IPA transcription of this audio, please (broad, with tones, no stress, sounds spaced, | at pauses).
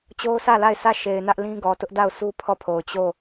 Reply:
t͡ɕ o˦ ʊ̯ sʰ ä˦˨ l a˦˨ ɪ̯ s ä˦˨ ʃ e˨ ɪ̯ n ä˦ ʔ l ĩ˦ ɡ ɔ˨ t ʊ˦ ʔ d a˦˨ ʊ̯ sʰ u˦ pʰ ɔ˦˨ pʰ o˨ ʊ̯ t͡ɕ o˦˨